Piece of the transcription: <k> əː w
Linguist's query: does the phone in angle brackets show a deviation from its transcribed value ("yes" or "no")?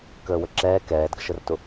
no